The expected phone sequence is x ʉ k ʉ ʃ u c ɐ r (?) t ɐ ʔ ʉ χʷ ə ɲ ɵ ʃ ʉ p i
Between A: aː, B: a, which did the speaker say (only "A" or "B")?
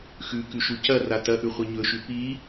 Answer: B